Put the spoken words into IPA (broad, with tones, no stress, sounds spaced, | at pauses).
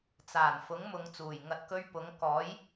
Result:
t͡s aː˨˩ n f ʊ˨˥ ŋ m ʊ˨˧ ŋ t͡s uː˨˩ j ŋ ɐ˨ t̚ k ɵ˧ ɥ p ʊ˨˥ ŋ k ɔː˨˥ j